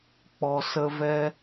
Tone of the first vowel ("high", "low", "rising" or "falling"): low